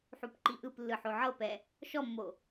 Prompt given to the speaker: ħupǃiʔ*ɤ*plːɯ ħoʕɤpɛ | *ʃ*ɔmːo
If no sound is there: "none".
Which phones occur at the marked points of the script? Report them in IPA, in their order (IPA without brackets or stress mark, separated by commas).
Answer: ɯ, ʃ